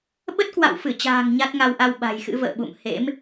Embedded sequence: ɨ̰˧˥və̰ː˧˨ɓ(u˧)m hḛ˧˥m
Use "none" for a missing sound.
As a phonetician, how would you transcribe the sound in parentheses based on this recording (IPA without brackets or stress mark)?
ṵ˧˨